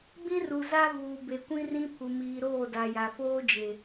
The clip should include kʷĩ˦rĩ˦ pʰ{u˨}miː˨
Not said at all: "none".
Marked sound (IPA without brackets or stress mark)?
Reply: u˨